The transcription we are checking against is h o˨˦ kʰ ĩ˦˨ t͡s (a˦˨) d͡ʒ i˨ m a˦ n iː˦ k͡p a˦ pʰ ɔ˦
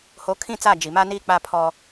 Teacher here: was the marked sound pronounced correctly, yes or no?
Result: yes